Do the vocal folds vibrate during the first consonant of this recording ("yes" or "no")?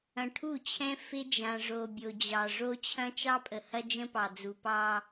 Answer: no